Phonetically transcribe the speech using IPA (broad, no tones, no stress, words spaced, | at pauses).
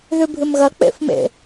ðʉbʱɨmɣɐ k͡pḛfmḛ